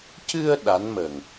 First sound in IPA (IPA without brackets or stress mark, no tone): c